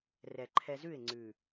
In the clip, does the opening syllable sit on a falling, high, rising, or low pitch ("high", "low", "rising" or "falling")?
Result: low